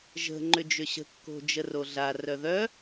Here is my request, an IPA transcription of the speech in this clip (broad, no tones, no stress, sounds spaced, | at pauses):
ʒ ə̤ ŋ͡ǃ ʏ d͡ʒ ʏ ɕ ə̤ kː o̤ d͡ʒ ə r o ɮ a r œ ð œ